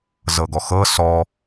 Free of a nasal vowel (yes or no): yes